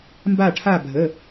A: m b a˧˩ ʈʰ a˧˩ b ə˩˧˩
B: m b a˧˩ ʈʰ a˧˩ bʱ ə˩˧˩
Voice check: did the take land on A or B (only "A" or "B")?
B